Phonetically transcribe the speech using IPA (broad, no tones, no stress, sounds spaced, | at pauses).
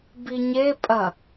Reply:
b i ɲ e pʼ ɐ